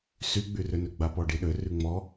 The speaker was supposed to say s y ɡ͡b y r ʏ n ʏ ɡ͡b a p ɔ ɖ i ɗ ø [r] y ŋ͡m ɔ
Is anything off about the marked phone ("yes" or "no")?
no